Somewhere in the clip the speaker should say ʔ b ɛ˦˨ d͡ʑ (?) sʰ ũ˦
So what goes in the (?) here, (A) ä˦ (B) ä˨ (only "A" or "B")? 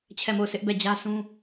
A